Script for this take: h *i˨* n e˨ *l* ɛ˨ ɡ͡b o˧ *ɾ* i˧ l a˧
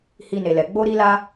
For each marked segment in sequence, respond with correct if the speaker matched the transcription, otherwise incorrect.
incorrect, correct, correct

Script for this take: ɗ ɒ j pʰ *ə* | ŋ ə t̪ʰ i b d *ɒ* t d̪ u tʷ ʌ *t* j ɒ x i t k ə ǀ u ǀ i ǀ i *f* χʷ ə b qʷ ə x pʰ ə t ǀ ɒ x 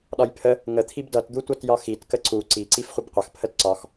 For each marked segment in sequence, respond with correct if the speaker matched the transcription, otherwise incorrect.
correct, incorrect, correct, correct

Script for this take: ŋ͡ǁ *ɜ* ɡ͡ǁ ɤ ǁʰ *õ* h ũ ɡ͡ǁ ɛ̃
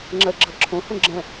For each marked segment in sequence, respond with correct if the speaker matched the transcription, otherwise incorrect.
correct, correct

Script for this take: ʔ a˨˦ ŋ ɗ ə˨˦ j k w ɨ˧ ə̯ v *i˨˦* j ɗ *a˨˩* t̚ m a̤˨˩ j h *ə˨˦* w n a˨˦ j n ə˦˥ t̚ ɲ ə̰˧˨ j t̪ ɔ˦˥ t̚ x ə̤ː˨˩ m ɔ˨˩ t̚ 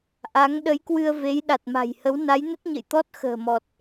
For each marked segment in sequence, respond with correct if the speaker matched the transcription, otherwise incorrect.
incorrect, correct, correct

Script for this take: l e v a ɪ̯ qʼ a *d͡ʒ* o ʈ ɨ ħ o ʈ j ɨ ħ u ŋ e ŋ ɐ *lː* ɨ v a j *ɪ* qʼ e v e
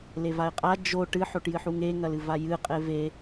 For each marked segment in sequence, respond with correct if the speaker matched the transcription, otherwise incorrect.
correct, incorrect, incorrect

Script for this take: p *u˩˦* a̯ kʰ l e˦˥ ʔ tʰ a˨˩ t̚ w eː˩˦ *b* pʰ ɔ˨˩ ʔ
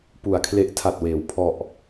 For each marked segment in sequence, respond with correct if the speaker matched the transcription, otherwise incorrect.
correct, incorrect

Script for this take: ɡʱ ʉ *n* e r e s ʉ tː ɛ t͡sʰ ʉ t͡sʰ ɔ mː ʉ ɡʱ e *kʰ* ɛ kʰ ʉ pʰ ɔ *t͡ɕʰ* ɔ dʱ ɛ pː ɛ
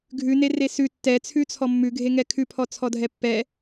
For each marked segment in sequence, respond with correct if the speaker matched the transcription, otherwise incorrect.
correct, incorrect, incorrect

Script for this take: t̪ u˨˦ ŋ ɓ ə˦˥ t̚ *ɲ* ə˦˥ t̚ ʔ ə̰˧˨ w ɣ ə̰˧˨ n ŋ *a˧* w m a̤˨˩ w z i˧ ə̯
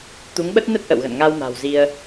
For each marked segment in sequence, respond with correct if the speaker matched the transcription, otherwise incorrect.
incorrect, correct

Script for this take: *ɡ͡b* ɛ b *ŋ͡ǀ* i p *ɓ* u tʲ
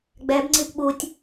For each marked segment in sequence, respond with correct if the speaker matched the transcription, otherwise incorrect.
correct, correct, correct

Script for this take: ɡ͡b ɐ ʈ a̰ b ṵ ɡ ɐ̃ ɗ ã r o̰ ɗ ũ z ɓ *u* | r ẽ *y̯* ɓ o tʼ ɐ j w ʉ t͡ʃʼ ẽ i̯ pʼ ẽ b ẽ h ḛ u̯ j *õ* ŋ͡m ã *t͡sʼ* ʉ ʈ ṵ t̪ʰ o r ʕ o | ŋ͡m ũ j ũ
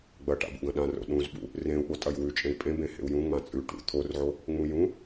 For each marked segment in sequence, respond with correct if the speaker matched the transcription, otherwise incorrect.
incorrect, incorrect, incorrect, correct

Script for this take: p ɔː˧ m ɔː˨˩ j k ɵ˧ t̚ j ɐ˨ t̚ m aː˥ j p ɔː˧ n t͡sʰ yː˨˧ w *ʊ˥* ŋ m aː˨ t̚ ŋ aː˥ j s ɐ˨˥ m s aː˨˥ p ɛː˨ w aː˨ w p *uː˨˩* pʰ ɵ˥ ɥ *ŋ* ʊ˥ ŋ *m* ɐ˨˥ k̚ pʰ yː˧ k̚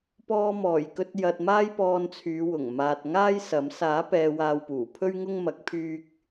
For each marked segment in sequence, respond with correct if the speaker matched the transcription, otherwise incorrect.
incorrect, correct, correct, correct

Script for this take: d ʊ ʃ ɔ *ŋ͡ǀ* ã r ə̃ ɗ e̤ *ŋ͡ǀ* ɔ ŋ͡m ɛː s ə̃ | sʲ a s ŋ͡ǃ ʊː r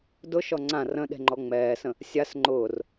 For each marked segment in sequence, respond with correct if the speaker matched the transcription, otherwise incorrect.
correct, incorrect

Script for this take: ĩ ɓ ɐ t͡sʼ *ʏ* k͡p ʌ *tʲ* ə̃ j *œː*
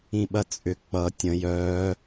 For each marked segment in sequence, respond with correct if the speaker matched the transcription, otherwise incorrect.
correct, correct, correct

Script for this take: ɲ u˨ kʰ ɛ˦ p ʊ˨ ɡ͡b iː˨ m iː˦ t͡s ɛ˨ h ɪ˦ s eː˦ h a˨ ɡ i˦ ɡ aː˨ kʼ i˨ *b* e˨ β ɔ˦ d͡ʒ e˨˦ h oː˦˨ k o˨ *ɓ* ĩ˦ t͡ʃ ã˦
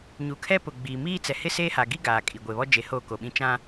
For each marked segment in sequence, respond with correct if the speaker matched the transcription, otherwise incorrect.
incorrect, correct

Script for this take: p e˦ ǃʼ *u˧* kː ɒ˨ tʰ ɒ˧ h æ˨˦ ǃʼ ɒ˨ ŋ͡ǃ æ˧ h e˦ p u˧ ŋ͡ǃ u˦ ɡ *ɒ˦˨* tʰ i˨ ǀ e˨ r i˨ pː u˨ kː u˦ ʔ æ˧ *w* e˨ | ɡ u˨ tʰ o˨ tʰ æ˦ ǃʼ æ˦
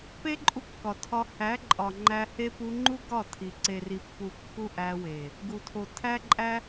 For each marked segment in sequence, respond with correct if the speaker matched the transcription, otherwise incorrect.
correct, correct, correct

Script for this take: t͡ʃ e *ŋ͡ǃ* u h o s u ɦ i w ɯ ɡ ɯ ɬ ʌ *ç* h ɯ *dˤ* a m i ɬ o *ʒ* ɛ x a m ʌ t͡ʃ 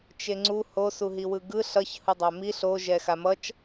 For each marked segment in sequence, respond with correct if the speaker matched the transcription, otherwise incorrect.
incorrect, correct, correct, correct

